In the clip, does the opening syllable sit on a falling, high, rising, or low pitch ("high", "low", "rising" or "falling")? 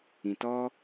low